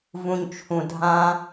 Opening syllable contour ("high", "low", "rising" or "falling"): high